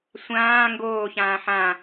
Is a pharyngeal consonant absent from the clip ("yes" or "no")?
no